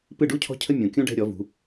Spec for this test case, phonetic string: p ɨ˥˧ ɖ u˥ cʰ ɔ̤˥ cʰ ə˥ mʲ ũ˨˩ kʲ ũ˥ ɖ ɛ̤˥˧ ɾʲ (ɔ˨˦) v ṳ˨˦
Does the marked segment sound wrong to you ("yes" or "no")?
no